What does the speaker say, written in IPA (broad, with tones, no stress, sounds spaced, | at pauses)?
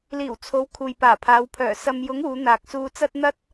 l iː˨˩ w t͡sʰ o˨˧ w kʰ uː˨ j p aː˨˩ pʰ aː˨˧ w pʰ œː˨˩ s ɐ˨ m j ʊ˨˧ ŋ uː˨˧ n̪ aː˨ k̚ s uː˧ t͡s ɐ˥ t̚ n̪ ɐ˥ t̚